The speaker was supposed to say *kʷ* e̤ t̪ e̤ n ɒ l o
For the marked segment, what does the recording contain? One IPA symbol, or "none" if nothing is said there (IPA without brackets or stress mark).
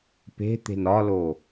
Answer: p